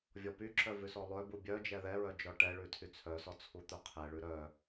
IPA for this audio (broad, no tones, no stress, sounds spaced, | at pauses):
vʲ ɔ p y ǁ œ v ʉ s ɔ lˠ œ b u bʲ œ d͡ʒ ɛ ð ɛ ɹ œ d͡ʒ ɔ ʈ ɛ ɭ ʉ tʰ y t͡sʰ œ s ɔ t͡sʰ u t̪ œ qʰ ɛ ɭ ʉ ɾ œ